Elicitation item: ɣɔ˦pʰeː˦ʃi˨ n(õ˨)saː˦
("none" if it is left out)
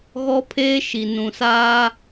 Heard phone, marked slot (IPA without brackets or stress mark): ũ˨